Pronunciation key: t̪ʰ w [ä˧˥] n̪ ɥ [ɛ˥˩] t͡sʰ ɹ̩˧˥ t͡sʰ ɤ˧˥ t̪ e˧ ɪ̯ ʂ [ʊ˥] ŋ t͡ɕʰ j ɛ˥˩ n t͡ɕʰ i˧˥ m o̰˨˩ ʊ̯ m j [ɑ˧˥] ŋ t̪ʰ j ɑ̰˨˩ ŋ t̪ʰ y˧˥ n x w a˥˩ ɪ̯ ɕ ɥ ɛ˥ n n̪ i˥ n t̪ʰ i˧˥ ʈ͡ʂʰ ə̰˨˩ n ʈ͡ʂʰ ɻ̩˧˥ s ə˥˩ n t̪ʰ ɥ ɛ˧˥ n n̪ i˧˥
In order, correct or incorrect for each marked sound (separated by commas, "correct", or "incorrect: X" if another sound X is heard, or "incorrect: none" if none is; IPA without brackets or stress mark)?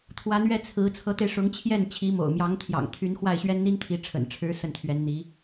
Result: correct, correct, incorrect: ʊ˧˥, correct